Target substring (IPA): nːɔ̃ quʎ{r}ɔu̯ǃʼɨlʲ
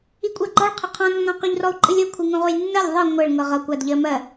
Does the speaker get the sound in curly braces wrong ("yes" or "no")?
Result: no